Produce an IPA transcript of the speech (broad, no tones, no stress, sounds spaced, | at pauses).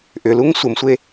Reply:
ʔ ʏ l u ŋ sʷ ə m sʷ e